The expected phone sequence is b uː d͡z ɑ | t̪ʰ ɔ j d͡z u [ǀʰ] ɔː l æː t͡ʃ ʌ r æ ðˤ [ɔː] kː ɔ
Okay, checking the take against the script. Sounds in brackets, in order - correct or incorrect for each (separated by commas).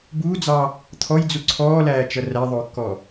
correct, incorrect